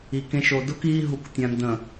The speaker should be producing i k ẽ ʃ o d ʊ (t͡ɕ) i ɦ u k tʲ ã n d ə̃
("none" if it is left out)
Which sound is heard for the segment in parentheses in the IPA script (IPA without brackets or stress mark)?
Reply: k